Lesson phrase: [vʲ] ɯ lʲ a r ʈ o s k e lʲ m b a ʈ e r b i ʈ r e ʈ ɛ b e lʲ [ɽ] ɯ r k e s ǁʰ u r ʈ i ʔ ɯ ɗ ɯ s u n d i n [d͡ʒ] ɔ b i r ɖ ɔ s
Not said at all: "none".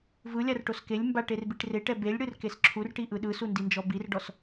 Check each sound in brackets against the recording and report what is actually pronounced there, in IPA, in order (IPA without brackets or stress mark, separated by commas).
v, ɽ, d͡ʒ